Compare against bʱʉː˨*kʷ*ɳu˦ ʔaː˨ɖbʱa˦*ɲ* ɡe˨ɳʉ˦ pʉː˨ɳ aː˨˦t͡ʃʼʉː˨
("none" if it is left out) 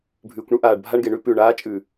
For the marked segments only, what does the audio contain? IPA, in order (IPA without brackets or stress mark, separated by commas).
kʷ, ɳ